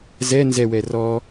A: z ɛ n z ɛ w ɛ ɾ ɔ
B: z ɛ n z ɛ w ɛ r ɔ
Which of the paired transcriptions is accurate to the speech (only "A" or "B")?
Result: B